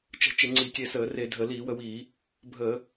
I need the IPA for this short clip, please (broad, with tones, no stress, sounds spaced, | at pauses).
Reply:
t͡ʃ ə̤˧˩˧ t͡ʃ ɪ˧˩˧ ŋ͡ǀ i˧˩˧ kʲ e˧ s əː˧˩˧ r e˧˩˧ dʱ ə˧˩˧ l iː˧˩˧ w ə˧ w iː˧˩˧ | bʱ əː˧˩˧